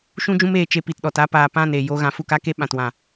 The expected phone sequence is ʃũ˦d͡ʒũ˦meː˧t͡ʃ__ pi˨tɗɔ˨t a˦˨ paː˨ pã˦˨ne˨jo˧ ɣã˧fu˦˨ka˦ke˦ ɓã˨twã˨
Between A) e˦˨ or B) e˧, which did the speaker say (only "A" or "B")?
B